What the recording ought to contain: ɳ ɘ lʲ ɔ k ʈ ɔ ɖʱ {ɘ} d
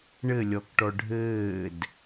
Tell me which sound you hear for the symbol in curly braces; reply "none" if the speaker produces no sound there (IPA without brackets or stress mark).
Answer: ɘː